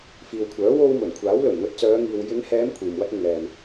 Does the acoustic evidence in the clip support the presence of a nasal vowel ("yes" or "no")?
no